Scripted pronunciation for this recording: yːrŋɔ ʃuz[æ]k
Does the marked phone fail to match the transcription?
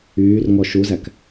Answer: no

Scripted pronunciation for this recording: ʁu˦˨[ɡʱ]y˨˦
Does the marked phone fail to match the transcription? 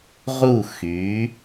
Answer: yes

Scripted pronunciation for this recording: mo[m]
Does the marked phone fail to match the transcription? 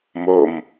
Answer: no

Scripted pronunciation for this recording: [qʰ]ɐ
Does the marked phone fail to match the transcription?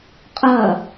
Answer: yes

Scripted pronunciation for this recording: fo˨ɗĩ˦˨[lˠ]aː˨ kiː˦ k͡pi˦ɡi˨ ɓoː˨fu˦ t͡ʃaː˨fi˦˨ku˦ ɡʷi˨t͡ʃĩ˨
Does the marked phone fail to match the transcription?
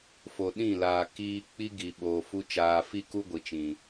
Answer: yes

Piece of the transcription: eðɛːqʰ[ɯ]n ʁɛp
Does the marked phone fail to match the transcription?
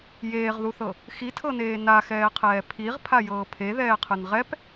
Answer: no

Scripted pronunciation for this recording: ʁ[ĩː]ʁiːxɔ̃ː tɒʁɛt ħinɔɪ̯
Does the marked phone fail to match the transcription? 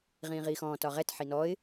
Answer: no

